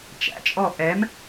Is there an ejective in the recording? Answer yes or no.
yes